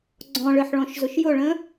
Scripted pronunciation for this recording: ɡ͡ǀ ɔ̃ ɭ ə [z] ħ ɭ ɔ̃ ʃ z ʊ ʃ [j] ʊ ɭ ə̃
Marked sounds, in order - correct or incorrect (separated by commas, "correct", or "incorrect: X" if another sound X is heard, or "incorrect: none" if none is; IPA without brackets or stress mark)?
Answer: incorrect: none, correct